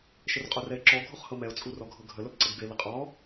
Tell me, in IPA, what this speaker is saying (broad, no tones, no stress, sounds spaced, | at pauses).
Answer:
ʃ ə r qʼ o r ɛ ɪ̯ ǁ ɔ ɡʱ o χ h ɤ m ɛ ʊ̯ t͡sʼ u r ɔ ɡʱ ɤ ɡʱ ə l ə b ǀ ɤ ɡ b e l ɘ qʼ ɔ